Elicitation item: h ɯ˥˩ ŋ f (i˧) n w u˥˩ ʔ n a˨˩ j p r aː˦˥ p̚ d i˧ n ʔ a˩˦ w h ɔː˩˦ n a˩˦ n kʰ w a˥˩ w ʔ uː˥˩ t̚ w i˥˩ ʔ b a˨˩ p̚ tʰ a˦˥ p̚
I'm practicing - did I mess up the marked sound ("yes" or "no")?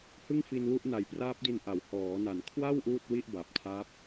no